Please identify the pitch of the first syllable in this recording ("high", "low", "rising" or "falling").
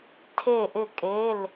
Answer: falling